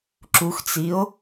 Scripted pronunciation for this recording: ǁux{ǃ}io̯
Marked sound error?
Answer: yes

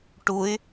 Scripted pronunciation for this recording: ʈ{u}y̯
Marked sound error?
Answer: no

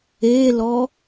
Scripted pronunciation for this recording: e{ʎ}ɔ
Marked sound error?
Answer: yes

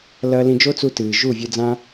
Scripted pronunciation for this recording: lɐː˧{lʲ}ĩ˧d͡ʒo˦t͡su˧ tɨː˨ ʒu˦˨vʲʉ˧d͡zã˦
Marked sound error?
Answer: yes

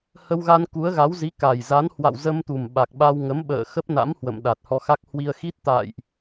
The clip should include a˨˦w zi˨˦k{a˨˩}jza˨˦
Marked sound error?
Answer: no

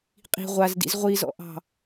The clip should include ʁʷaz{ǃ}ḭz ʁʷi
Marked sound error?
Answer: yes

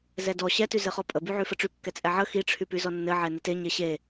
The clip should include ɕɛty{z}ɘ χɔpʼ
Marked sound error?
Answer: no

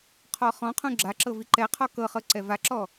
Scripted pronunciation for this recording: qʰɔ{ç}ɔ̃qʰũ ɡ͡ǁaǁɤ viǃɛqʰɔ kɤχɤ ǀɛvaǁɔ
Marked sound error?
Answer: yes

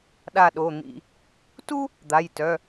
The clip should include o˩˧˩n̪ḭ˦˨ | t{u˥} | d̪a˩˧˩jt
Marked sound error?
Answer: no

